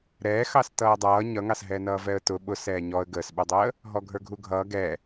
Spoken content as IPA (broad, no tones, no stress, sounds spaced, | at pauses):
ɾ ɛː x ɑ s t ʌː dˤ ʌː ɲ ʌ ŋ ɑ s ɦ ɛ n ʌː v ɛ ə̯ t ʊ ɓ ʊ s ɛː ɲ ɔ ə̯ ɡ əː s ɓ ə˞ dˤ əː | ɦ ɔ ɡʱ ə˞ ɡʱ u ɡʱ ʌː ɡ ɛ